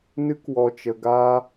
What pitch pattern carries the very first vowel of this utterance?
high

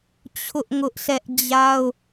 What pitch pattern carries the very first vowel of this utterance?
high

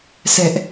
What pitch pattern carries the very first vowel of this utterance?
high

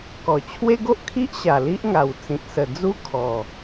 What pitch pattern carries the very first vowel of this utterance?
low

